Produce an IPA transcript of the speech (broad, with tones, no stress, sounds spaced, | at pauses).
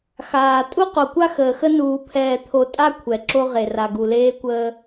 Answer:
x aː˨ tʼ u˦ q o˨ kʷ a˦ x əː˨ x ə˦ n uː˨ pʰ ɛː˨ t̪ʰ o˨ tʼ a˦ kʷʰ ɛ˨ ǁ o˦ ʁ e˨ r a˨ ɡ u˨ l eː˦ kʷ əː˦